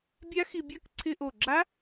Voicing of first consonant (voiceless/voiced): voiced